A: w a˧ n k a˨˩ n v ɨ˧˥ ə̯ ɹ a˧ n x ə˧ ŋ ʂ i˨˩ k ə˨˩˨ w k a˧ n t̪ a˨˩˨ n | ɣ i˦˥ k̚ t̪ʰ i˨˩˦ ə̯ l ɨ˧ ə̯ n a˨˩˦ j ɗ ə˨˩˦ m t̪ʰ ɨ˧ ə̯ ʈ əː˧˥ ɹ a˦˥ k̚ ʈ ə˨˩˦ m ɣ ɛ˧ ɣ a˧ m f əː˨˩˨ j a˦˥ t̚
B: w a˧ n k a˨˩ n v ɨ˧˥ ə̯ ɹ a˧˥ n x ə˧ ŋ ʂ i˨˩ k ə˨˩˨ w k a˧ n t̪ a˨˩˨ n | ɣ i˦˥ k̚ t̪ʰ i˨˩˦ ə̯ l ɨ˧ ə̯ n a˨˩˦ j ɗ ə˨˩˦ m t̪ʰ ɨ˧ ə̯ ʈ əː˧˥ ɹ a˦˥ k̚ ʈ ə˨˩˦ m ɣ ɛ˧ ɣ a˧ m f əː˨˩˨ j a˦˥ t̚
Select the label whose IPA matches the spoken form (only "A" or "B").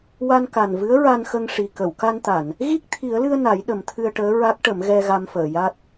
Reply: A